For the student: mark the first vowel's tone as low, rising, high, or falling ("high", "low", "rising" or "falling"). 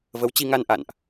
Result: rising